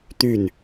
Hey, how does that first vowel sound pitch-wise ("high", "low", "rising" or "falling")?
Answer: falling